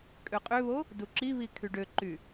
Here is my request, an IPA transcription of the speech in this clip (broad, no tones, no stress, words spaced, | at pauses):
kʼøqʼøβo | duǁiβi kʰyɖøǃy